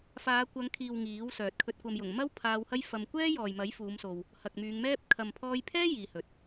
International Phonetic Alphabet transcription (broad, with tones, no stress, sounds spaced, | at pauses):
f aː˨˧ kʷ ɐ˨˧ ŋ kʰ iː˨ w ŋ iː˨˥ w s œː˨ t̚ kʰ ɵ˨ t̚ kʷ ɐ˨ m j ʊ˨˩ ŋ m ɐ˥ w pʰ aː˧ w h ɐ˥ j f ɐ˧ m kʷ ɛː˥ j ɔː˨ j m ɐ˨˥ j f uː˨˧ m s o˨ w | h ɐ˨ k̚ m yː˨˧ ŋ m ɛː˥ p̚ kʰ ɐ˨ m pʰ ɔː˧ j pʰ ɛː˥ j iː˨ h ɵ˨ t̚